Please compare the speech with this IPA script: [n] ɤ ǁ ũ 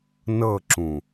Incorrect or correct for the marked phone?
correct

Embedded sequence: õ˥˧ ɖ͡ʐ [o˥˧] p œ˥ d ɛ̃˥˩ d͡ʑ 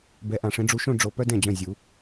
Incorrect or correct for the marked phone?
incorrect: o˨˦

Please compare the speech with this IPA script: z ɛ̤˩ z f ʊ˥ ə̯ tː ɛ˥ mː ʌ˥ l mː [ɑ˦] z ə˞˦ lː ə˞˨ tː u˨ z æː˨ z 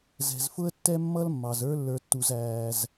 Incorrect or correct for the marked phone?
incorrect: ɑ˩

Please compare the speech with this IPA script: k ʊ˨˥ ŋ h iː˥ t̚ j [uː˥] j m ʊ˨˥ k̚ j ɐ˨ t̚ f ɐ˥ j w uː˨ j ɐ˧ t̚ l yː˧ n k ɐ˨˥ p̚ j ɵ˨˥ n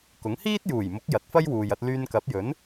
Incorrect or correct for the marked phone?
incorrect: uː˨˩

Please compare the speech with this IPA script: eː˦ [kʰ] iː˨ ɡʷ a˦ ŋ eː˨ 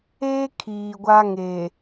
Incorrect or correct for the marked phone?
correct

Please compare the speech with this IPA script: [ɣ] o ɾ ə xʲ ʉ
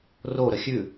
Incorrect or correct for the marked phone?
incorrect: r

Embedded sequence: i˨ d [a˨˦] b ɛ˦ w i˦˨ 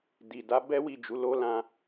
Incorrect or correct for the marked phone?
correct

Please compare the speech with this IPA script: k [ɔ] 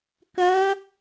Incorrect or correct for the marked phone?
incorrect: ʌ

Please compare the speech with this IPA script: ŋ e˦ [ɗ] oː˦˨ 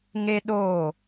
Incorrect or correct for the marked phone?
correct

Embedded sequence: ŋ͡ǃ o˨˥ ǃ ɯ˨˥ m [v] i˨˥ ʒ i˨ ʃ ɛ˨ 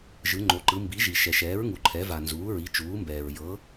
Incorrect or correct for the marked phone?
incorrect: b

